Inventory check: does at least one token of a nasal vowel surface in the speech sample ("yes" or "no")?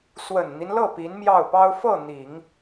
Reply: no